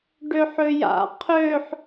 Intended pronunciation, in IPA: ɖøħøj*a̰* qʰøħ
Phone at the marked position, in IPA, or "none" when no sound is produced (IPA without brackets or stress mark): a̰